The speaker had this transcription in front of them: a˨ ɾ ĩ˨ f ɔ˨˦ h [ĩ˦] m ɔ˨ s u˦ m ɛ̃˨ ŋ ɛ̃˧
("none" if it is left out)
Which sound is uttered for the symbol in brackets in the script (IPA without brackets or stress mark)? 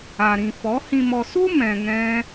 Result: ĩ˨